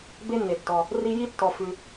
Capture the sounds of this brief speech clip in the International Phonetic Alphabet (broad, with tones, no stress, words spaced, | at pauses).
be˥nːe˩tːɔ˩ | ri˦ji˥tːɔ˨ fʉ˨